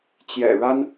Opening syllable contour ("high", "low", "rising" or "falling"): low